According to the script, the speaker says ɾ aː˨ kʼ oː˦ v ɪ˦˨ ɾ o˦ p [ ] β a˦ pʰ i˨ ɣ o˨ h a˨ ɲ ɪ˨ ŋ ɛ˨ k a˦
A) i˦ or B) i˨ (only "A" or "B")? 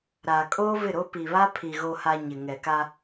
B